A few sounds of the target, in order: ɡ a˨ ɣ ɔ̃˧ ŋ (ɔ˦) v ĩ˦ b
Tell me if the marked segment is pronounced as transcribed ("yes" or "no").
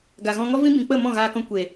yes